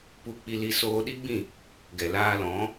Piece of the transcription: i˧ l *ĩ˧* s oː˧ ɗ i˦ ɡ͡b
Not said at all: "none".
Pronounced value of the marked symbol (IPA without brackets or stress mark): i˧